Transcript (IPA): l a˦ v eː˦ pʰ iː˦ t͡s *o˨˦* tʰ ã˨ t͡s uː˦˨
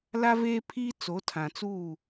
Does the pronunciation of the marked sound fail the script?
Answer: no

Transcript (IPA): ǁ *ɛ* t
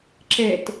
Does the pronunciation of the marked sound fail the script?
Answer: no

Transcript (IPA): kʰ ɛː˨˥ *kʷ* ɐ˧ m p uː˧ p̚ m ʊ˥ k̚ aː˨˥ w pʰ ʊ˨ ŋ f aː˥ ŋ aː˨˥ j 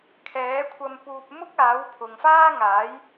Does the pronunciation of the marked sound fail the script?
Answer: yes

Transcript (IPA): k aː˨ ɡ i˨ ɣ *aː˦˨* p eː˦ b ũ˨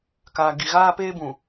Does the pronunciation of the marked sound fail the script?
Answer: yes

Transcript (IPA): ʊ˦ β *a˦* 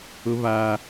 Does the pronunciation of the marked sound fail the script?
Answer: no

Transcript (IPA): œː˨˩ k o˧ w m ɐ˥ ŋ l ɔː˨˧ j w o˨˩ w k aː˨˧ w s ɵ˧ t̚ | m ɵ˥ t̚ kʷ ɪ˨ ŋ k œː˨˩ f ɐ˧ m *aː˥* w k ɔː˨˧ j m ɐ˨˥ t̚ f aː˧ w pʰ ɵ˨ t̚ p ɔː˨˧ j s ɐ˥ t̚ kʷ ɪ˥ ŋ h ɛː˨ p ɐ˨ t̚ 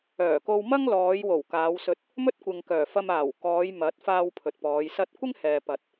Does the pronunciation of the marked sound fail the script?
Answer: yes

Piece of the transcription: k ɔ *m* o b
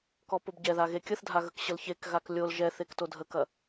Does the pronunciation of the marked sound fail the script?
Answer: yes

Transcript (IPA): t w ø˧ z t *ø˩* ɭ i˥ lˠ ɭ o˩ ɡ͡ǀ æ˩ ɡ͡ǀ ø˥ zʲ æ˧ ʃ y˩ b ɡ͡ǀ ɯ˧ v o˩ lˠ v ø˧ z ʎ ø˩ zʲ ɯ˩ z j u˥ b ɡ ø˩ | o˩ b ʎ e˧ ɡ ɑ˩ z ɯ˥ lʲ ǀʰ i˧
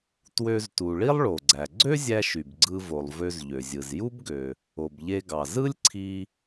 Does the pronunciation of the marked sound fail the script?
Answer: yes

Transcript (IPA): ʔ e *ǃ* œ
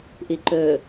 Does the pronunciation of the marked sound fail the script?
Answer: no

